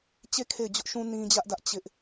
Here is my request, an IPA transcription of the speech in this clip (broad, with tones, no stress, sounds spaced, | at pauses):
t͡ɕ e˦˨ kʰ e˦˨ ɪ̯ d͡ʑ ʊ˦ ʔ ʃ ũ˦ n ĩ˦ d͡ʑ ä˦ ʔ d ä˦ ʔ t͡ɕ ɪ˦ ʔ